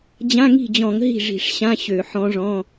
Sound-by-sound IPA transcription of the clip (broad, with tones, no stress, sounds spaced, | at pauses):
d͡ʑ ã˧˥˧ ŋ i̤˥˩ d͡ʑ ɔ̃˧˩˧ ŋ ɦ i̤˥˩ ʐ i̤˧˩˧ ʂ ɕ ã˧˥˧ ɕ ø˧˩˧ ħ ɔ̃˧˥ ʐ ɔ̃˧˥˧